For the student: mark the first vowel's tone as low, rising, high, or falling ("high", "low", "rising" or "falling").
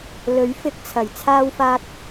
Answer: rising